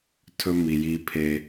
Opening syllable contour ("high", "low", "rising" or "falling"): high